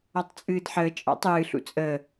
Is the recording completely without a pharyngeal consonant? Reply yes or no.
no